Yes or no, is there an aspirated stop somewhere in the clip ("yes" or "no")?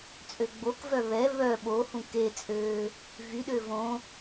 no